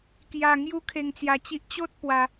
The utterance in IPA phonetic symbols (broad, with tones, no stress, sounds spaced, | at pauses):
k j a˧ ŋ j u˦ kʰ e˧ ŋ t͡s j a˧ t͡ɕ i˦ ʔ t͡ɕ o˦ t̚ p w a˧